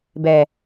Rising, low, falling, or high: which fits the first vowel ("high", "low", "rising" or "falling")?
low